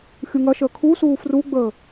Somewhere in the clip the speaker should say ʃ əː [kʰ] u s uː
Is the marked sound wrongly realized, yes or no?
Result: no